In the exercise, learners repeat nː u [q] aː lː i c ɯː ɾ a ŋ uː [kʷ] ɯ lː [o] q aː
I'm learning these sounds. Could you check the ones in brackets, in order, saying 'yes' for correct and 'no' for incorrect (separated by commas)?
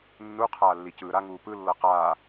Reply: no, no, no